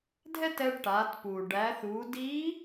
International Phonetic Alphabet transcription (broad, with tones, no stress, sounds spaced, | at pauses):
dʱ ɛ˥ t ɛ˧ ɖ ʈ aː˩˧ t p uː˩ ɖ æ˩˧ θ uː˩˧ d iː˧˥